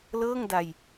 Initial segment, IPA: l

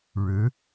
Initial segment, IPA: ɻ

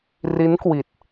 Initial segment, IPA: r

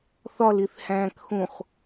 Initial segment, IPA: θ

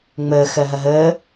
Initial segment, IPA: ŋ͡m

